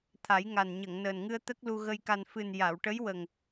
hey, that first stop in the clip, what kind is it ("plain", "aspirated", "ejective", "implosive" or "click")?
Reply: aspirated